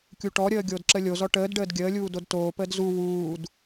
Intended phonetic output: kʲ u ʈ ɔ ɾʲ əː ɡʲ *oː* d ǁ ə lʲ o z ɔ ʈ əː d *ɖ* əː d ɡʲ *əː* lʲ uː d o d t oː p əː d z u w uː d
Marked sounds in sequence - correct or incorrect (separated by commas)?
correct, correct, correct